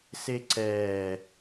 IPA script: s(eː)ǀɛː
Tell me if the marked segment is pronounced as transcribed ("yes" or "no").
no